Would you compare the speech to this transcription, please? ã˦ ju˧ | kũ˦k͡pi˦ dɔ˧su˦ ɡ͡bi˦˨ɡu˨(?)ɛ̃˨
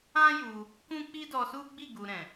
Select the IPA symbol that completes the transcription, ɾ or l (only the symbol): ɾ